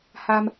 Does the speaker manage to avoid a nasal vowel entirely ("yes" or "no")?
yes